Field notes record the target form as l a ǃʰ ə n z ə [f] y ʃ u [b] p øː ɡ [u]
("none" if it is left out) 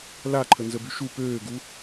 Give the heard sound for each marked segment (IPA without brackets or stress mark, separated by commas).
b, none, u